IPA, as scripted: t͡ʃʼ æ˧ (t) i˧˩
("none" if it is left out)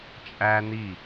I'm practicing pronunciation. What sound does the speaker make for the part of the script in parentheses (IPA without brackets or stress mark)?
n